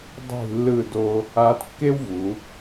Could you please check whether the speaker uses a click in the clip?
no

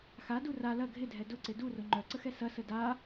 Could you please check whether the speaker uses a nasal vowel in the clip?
no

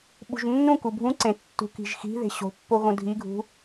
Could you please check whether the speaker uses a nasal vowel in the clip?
yes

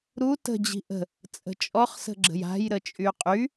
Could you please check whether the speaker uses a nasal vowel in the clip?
no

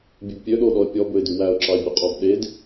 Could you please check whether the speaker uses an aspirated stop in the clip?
no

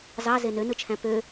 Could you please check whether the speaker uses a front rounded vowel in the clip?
yes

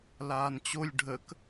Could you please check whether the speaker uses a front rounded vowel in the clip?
no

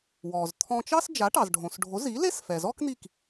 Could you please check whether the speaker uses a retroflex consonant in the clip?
yes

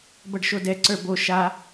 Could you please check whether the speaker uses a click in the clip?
yes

